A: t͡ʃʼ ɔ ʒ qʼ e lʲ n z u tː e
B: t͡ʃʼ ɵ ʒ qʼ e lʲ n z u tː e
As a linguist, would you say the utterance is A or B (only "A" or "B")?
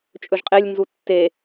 B